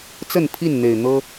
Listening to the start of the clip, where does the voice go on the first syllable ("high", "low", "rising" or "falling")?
falling